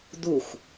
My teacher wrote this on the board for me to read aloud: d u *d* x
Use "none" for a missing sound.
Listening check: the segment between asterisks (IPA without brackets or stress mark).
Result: none